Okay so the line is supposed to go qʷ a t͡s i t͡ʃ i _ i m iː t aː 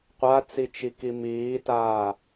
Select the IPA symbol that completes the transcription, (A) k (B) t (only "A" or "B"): A